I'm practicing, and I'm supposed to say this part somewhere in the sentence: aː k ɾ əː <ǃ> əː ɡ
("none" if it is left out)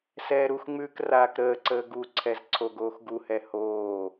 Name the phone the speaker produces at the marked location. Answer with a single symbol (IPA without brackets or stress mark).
ǀ